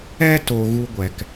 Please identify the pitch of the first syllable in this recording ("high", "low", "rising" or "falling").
high